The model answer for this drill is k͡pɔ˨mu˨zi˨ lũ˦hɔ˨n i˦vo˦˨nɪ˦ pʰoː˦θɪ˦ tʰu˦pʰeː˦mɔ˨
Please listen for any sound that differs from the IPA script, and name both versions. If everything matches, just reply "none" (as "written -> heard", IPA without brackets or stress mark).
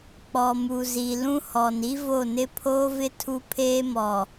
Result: θ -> v